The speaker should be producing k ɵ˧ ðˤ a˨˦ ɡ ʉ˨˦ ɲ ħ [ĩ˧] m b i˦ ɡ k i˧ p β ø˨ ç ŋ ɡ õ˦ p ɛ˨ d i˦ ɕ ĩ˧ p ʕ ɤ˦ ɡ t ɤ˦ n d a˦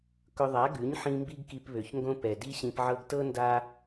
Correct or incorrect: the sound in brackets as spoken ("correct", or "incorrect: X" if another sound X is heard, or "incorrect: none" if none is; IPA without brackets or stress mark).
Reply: correct